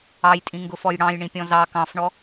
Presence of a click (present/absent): absent